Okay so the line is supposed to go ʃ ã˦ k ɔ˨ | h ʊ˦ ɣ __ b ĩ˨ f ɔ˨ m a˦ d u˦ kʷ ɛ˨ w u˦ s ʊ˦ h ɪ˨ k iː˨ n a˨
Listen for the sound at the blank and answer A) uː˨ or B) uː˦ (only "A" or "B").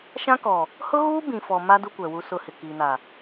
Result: B